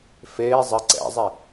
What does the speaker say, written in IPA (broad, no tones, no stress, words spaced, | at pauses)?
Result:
feː zˤɘ ǀɛ̰zˤi